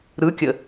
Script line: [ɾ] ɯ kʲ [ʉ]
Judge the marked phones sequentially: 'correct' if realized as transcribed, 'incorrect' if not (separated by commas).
correct, incorrect